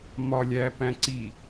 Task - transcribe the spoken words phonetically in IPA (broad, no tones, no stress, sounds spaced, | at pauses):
m ɒ lʲ æː p æ̃ ǀ i